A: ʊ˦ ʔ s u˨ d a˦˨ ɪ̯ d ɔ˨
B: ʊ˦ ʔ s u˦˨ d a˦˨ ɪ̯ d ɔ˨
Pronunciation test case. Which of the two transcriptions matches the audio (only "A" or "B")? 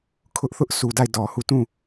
A